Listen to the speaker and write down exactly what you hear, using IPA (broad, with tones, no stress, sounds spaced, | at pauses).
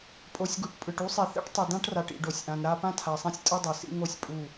pʼ o˨ sʲ ɡ u˨ ʈ pʼ ɯ˨ ʈ u˦ sˤ i˨ θ ɛ̰˦ ʈ tˤ ɯ˨ d ã˦ ʈ r a˨ ʈ ḭ˨ ɖ o˨ sʲ ʔ ã˨ n ɾ a˦ p ã˦ tʰ a˨ sˤ ɛ̃˦ sʲ tʼ ɯ˦ dˤ ɯ˨ s ḭ˦ ŋ o˦˨ sʲ pʼ u˦˨